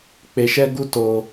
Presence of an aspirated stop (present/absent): absent